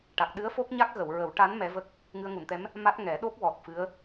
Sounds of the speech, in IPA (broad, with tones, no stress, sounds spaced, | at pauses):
ʈ a˨˩ k̚ ɗ ɨ˧˥ ə̯ f o˦˥ k̚ ɲ a˦˥ k̚ ɣ ə˨˩˨ w ɹ ə˨˩˦ w ʈ a˧˥ n m ɛ˧˥ v ə˦˥ k̚ | ŋ ɨ˧ ə̯ ŋ u˨˩˨ n t̪ ɛ˧˥ m | m a˦˥ t̚ ŋ ɛ˨˩˦ ɗ o˦˥ k̚ w ɔ˨˩ t̚ f ɨ˧˥ ə̯